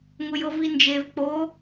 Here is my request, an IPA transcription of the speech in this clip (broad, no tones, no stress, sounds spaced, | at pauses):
ŋ ʊ j ɤ v i n d͡ʒ e v k͡p o